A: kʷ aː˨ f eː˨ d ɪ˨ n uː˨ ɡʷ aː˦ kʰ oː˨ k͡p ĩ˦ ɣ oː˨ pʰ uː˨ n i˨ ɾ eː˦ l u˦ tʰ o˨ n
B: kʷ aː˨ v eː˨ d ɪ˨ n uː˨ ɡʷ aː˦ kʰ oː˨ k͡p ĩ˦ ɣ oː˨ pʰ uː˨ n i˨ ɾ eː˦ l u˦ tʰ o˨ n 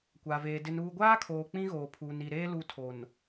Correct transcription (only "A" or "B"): B